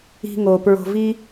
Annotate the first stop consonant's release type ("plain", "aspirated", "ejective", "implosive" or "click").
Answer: plain